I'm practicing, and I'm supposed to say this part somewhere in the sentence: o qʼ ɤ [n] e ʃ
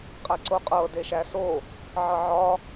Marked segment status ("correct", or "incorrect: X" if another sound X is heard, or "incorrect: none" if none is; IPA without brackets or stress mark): incorrect: d